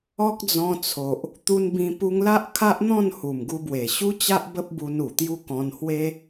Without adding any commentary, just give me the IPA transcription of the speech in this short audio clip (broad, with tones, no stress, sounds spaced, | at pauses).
ɔ˦ k̚ d͡z ɔ̃˧ t͡sʰ o˨ ʔ | t̪ u˧ n b ĩ˧ p u˧ ŋ l a˦ ʔ kʰ a˦ ʔ n̪ ɔ̃˥˧ n h u˨˩ m ɡ u˧ b w e˨˩ ɕ u˦ t͡ɕ a˦ ʔ b ə˦ p̚ b u˧ n u˨˩ t̪ j u˦ k ɔ̃˧ n h w e˦